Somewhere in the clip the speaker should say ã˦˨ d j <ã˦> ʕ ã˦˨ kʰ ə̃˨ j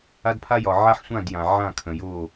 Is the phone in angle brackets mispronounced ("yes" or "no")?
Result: yes